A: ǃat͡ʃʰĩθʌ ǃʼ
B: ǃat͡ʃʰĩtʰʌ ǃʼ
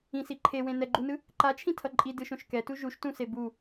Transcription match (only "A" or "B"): B